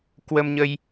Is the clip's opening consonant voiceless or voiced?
voiceless